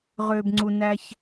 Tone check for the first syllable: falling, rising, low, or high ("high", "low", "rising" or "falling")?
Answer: low